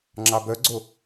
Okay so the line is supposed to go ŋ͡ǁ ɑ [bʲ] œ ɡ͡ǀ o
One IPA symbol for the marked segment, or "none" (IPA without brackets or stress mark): b